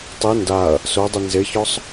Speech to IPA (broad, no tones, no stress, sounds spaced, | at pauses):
tˤ i n d a ɐ̯ | s o dˤ ɪ n z ɪ ç ɔ sˤ